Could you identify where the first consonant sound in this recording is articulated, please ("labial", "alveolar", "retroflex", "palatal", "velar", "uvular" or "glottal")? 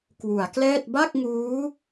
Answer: velar